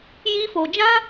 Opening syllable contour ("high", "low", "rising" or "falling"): high